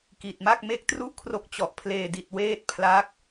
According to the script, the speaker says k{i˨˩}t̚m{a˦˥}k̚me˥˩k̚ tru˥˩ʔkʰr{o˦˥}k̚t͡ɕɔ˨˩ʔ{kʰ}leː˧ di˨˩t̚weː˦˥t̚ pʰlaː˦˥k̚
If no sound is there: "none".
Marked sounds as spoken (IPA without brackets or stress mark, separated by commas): i˨˩, a˥˩, o˦˥, pʰ